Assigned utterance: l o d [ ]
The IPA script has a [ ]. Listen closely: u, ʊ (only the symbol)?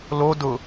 ʊ